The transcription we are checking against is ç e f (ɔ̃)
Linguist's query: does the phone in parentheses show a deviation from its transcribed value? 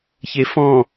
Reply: no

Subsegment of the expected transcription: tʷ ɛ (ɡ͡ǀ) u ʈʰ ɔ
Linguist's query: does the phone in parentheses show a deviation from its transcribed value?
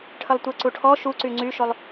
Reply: yes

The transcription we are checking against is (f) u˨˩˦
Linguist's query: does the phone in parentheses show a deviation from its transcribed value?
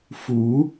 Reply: no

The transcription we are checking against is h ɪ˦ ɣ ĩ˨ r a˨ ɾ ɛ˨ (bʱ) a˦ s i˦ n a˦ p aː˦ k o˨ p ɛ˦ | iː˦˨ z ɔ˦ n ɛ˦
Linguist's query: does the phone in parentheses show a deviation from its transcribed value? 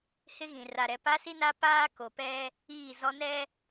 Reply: yes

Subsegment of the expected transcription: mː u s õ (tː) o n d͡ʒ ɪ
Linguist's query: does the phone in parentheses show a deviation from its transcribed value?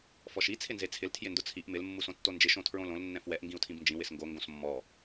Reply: no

